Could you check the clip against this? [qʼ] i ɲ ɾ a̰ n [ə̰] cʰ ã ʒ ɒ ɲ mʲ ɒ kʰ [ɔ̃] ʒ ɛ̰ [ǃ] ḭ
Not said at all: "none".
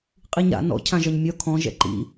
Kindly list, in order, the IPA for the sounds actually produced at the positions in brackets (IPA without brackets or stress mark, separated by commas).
qʼ, ɔ̰, ɔ̃, ǃ